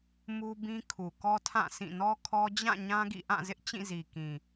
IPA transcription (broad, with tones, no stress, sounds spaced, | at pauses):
m u˦ b ĩ˦ kʰ u˨ k ɔ˦ tʰ ã˦˨ sʰ ĩ˦˨ n ɔ˦ kʰ ɔ˦ d͡ʑ ã˦˨ ɲ ã˦ ɡ ḭ˦˨ ʔ ã˦˨ z ɪ˦ ʔ t͡ɕ ĩ˦˨ z i˨ k ĩ˨